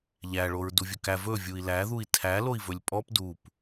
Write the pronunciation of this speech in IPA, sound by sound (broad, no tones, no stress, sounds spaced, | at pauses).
ʎ æ ɭ o ɹ d u vʲ ɵ k æ v ɵ vʲ u i̯ l æ ð u i̯ tʰ æ l o i̯ v ɵ lʲ pʼ ɔ p d u p